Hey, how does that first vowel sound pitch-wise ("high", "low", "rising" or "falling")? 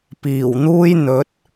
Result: low